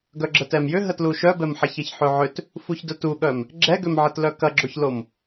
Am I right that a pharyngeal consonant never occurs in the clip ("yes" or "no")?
no